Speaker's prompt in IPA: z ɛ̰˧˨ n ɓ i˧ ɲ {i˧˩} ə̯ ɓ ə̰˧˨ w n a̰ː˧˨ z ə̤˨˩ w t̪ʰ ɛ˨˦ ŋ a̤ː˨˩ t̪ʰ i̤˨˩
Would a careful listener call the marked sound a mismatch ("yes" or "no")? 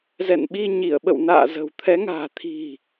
no